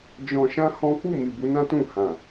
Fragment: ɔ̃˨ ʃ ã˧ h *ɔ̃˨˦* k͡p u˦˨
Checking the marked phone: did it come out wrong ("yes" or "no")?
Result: yes